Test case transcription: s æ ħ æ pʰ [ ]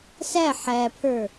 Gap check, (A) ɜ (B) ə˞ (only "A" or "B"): B